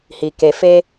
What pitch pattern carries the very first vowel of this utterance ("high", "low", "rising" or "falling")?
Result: low